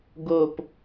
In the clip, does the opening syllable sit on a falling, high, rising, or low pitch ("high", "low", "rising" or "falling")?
falling